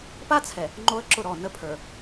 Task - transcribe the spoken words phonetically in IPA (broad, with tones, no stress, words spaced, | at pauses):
pa˦t͡sʰɛ˨ | ŋ͡ǃo˦ə̯ǁʊ˦˨ɾɔ˦˨ nə˦ pʰə˞˨